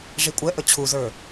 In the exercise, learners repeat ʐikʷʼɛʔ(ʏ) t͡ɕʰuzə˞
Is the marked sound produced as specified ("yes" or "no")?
no